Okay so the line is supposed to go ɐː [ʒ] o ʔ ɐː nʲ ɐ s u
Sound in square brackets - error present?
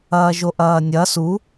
no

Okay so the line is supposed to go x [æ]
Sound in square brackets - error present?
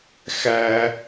no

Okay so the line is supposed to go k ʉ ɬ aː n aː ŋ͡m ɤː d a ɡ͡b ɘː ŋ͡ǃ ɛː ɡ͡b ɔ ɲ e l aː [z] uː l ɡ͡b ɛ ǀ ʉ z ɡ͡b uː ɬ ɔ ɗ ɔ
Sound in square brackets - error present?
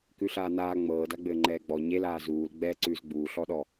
no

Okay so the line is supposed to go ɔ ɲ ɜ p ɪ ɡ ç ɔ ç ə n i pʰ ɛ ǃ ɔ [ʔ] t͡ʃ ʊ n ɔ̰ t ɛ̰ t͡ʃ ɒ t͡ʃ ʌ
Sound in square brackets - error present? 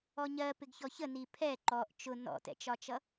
no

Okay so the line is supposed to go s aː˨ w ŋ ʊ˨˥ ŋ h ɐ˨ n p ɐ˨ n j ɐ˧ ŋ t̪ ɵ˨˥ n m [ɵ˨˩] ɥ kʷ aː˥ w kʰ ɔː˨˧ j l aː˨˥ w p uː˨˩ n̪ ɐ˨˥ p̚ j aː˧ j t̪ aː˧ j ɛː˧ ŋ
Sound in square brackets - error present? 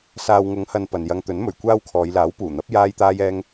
no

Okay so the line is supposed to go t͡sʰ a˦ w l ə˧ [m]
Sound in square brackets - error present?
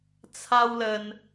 yes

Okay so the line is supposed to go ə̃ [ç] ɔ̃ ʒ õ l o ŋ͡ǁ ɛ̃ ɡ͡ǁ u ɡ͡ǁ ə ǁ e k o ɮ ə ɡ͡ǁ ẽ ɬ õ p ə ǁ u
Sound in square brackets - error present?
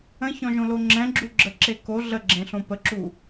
no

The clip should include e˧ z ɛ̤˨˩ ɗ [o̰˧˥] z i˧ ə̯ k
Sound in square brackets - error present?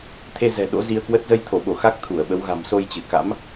no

